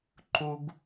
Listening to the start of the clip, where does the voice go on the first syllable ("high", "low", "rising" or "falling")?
high